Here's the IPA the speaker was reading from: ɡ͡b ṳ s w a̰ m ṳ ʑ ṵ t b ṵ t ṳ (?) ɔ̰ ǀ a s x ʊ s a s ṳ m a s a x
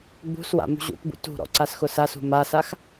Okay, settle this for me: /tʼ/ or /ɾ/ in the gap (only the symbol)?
ɾ